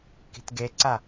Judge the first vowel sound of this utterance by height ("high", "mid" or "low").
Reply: high